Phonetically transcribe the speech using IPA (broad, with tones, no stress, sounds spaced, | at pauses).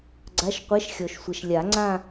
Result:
ɡ͡ǀ a˧˥˧ ʃ qʷ ɛ˧˥˧ ʃ xʲ ɔ˨ ʃ sʷ ɛ˨ ʃ lʲ a˨˩˦ ŋ͡ǀ ã˥˧